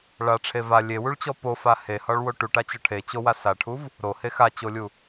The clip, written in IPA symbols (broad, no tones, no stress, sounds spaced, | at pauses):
ɭ a ʈ͡ʂʰ e v a lʲ e w u ɭ t͡ɕ ɔ p o f a h e h ɒ ɭ w o ʈ u ʈ a t͡ɕ ɒ ʈʰ e t͡ɕ o w a s a ʈʰ u v | ɾ o h e x a t͡ɕ o lʲ u